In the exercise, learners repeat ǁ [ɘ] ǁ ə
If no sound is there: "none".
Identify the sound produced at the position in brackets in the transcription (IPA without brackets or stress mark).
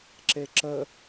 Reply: e